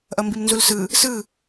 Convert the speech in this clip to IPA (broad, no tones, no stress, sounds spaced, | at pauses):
ʔ ʌ m b i m n z u l s ɯ | s ɯ